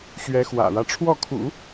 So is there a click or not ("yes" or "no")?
no